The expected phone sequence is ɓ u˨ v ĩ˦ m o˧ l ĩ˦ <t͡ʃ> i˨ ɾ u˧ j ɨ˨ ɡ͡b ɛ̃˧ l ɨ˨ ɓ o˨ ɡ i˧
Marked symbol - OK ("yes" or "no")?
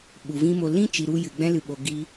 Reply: yes